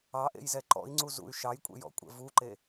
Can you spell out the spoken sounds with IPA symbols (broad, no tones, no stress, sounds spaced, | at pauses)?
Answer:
ɑ ʔ ḛ j z ɛ ǃ ɔ̰ i̯ ŋ͡ǀ u z ṵ y̯ ʃ ɑ j kʷʼ ḛ j ɔ̰ kʷʼ ɛ̰ v u ǃ e